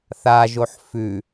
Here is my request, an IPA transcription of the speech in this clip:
θaʒoħ fʉ

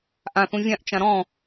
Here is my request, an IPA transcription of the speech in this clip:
ʔãθũ vʲãʔt͡ʃã ɾɔ̃

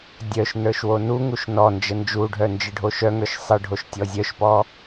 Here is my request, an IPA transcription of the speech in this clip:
dʲœʃnə˞ʃ wonuŋuʃ nɔnd͡ʒə nd͡ʒuɖʱœ nd͡ʒɨɖʱoʃœŋə˞ʃ sˤɨɖʱoʃ tʲɔzʲœʃpɔ

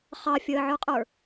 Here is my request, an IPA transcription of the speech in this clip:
χɑfʲəːʕə˞qʼə˞

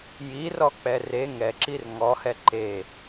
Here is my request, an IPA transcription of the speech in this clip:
jirɔk͡pɛ re ŋɛǁir ŋɔhɛ ǃe

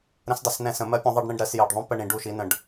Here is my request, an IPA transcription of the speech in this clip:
ɾə̃˧˥sdˤə˨˩snɛ̃˦˨sə̃˧˩˧ mɜ˧˥pʲũ˩˧ðˤɜ˦˨ɖ ɳĩ˦˨ɖɾɜ˧˩˧sjɜ˨˩ɖðˤũ˧˥˧ pə˦˨ɳĩ˧˩˧ ɖu˦˨ʃi˧˥nə̃˦˨ɖ

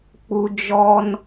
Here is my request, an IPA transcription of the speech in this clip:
k͡pu˦ d͡ʒɔ˦n

